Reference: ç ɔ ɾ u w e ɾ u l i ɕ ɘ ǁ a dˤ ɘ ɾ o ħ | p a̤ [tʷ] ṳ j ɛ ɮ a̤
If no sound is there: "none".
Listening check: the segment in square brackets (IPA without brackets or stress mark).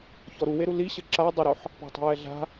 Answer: tˤ